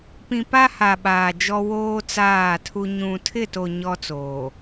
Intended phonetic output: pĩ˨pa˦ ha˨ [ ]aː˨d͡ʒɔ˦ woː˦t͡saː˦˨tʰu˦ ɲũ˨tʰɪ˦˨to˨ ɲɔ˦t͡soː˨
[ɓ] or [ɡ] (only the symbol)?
ɓ